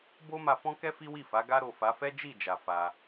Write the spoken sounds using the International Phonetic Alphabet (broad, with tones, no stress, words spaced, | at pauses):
bo˦ma˧fɔ̃˦kɛ˦ fi˦wi˦˨fa˨˦ ɡa˧ɾo˨ fa˨˦fɛ˦ d͡ʒi˦˨d͡ʒa˨ fa˧